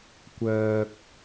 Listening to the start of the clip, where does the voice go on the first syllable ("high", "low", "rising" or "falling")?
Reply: low